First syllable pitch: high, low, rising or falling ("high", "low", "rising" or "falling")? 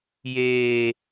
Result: high